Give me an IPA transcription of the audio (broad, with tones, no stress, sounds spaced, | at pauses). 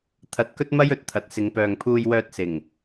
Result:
t̪ʰ ɐ˧ t̚ k ɵ˥ t̚ m ɐ˥ j ɵ˨ t̚ t̪ʰ ɐ˨ t̚ s ɪ˨˧ ŋ p œː˨ ŋ pʰ uː˧ j w œː˧ t̚ s ɪ˨˩ ŋ